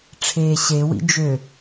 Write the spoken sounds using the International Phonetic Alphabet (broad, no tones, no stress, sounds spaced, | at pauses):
ʈ͡ʂʰ eː ɕ e w ḭ d͡ʒ ø